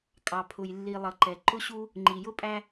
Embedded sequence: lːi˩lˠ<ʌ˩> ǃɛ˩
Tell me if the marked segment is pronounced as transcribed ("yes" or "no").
yes